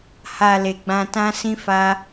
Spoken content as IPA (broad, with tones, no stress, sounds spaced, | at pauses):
h a˨ l e˨ ɡ͡b ã˧ t ã˦ s ĩ˦ f a˦